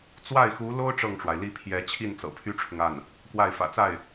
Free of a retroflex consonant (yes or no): no